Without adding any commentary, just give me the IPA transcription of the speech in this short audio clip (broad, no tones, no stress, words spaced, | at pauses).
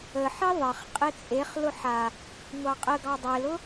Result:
əħi ðˤəχ qʼet͡sʼeχlʊ ħa | ŋʷɑqʼəɡɑ dˤelʊ